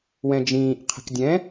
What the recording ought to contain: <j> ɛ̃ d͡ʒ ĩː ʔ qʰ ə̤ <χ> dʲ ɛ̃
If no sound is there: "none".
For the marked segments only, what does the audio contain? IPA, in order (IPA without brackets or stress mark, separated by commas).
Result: w, k